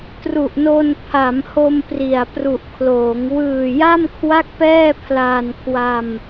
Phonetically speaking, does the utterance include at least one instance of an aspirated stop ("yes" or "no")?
yes